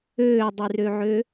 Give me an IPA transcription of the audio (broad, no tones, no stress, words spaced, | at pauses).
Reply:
øːdˤyrøʕø